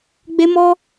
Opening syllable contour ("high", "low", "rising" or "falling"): high